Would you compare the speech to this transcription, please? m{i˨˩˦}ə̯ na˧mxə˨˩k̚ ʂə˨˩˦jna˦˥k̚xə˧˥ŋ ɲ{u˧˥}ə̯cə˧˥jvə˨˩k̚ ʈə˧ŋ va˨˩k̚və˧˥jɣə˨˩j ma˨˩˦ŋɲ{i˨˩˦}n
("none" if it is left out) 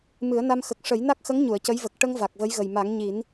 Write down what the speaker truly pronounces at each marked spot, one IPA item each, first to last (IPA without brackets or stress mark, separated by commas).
ɨ˨˩˦, u˨˩˨, i˨˩˦